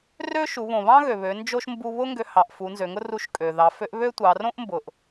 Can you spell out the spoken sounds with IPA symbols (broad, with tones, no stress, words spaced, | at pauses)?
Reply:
rø˥ʃu˩˧ βõ˩βɑ̃˥ɣø˩βø˩˧ nd͡ʒo˥ʃ mbu˧βʊ˥ ŋɡø˧hɑ˩ʔ fu˩˧nzø˩˧ŋʊ˥ru˧˥ʃ kʼø˩ ðɑ˩˧ fø˧˥ʔ βø˥tʷɑ˩˧ rõ˥ʔmbʊ˩ʔ